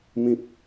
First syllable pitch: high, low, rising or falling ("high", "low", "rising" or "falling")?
high